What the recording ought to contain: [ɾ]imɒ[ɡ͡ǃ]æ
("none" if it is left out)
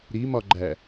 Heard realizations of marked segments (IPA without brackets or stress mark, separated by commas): ɾ, ɡ͡ǃ